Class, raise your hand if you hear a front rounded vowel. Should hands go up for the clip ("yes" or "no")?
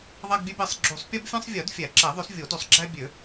yes